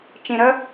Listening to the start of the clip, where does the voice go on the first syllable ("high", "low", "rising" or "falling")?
low